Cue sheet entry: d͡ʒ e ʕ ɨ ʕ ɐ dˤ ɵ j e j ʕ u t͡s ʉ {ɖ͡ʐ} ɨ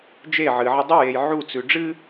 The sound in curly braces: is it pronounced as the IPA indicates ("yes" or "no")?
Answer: yes